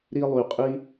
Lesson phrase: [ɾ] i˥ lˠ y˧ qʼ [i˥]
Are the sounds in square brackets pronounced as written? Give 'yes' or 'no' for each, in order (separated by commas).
yes, yes